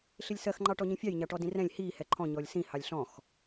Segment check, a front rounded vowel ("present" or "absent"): absent